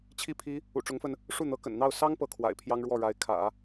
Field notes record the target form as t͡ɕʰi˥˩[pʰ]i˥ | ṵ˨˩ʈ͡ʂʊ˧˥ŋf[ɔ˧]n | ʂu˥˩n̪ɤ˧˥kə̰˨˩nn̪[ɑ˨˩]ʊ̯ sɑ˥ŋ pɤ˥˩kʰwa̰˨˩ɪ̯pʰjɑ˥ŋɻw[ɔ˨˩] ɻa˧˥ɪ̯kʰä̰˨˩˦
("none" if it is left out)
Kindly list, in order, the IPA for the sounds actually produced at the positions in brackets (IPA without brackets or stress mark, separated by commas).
pʰ, ə˧, ɑ˥˩, ɔ˥˩